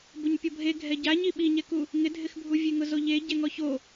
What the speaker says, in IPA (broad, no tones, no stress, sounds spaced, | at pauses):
b ʊ ɲ pʲ ɔ bʱ e ɡʱ ɛ ɟ a ɲ i ɓ i ɲ ɛ k u | ŋ ɪ dʱ ɪ x bʱ u vʲ e ŋ ʊ z o ʎ e ɟ ɛ ŋ ɔ ç o